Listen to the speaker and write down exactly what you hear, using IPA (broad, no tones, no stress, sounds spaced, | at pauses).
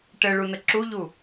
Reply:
ʈ ɘ ɭ u n ə ǁ u ʎ u